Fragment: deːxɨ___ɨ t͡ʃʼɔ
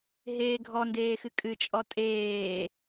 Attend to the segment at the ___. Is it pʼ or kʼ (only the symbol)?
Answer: kʼ